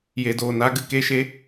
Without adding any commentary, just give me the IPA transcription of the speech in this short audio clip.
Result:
j e˨ d oː˨ n a˦ ɡ ɨ˨ k e˦˨ ʃ e˦

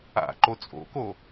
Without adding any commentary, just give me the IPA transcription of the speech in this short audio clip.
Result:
a̰ ǃ o t͡sʼ o̰ k o

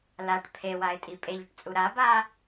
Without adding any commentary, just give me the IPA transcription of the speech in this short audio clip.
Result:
l a ʈ pʰ e w a ɪ̯ tʼ i pʼ e ʎ ɵ ʈ t͡sʼ u ɾ a b a

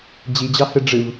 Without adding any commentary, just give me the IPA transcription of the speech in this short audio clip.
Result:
d͡ʑ i d͡ʑ ɑ h ɯ ɖ͡ʐ ɯ v

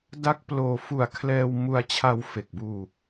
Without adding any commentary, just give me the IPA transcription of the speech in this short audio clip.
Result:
d a˦˥ k̚ p l oː˧ f u˨˩ a̯ kʰ l ɛː˧ w m u˧ a̯ t͡ɕʰ a˧ w f e˨˩ k̚ b uː˧

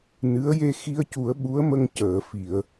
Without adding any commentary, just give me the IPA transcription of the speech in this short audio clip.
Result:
n ɨ˧˥ ə̯ j e˧ x i˧ ə̯ c u˨˩˦ ə̯ ɓ u˧˥ ə̯ m ə˧ ŋ c əː˨˩˨ f i˨˩˨ ə̯

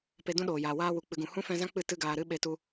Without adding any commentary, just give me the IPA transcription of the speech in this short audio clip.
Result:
p e˧ d ũ˦ ɗ oː˨ j aː˨ w aː˧ w u˨ k͡p ɨ˨ ɡ ũ˨ h ũ˦ f ɛ̃˧ z ã˦ k͡p ɨ˦˨ t ɨ˦ ɡ aː˧ ɾ ɨ˦ ɓ e˧ t u˧

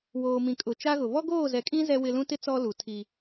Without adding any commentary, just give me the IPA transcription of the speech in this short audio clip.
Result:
w oː˨ m ĩ˨ kʼ ʊ˨ t͡ʃ a˦ ɣ ʊ˨ β ɔ˦ ɡ oː˦˨ z ɛ˨ kʼ ĩ˦ z ɛ˦ w ɪ˦ l ũ˦ t ɪ˦ t͡s ɔ˦ l u˨ tʰ i˦

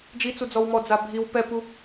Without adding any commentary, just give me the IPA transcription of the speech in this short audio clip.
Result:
d͡ʒ i t͡s u d͡z ɔ w m ɔ d͡z a bʱ i w p ɛ p u

